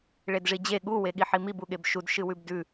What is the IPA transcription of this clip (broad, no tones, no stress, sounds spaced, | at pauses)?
ɭ e d ʐ i d͡ʑ e ɠ u w e ɠ i ħ i m i b u ɠ e b ʃ u d ʃ ɨ w ʉ b d ʉ